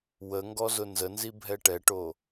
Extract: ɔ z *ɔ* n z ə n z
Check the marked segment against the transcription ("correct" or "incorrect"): incorrect